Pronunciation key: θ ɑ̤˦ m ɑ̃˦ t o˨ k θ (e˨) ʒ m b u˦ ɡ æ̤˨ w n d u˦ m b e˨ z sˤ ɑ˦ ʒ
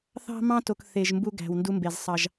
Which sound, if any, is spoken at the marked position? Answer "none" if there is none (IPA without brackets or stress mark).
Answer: e˨